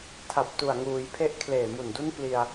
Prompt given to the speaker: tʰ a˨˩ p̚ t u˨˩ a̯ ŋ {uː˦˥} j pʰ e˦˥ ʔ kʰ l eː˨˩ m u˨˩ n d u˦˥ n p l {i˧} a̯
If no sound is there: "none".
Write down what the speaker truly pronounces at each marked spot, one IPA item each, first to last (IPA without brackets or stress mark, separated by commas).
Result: uː˩˦, i˧